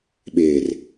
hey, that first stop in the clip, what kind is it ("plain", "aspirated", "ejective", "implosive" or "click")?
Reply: implosive